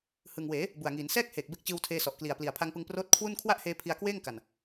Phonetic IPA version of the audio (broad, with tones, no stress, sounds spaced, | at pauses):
h ɯ˨˩ ŋ w eː˩˦ | b u˨˩ a̯ ŋ iː˩˦ n s ɛː˥˩ k̚ h eː˨˩ k̚ b e˦˥ k̚ t͡ɕ ɯː˧ w tʰ eː˧ s ɔ˨˩ ʔ k l i˨˩ a̯ p l i˨˩ a̯ pʰ a˧ ŋ p ɯ˧ ŋ p r oː˦˥ t̚ kʰ w u˥˩ n kʰ w a˥˩ ʔ h eː˧ pʰ i˧ a̯ k w eː˥˩ ŋ k a˨˩ n